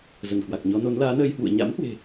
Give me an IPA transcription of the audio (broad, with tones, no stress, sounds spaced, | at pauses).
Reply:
z ə˧˩ n k w a˨˩ k̚ ɲ ɔ˨˦ n o˨˦ n l aː˨˦ n əː˧ j h w ṵ˧˨ ə̯ ɲ a̰˧˥ m h w e̤˨˩